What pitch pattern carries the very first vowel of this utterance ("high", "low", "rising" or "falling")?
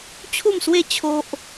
falling